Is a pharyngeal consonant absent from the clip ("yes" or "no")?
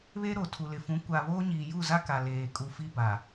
yes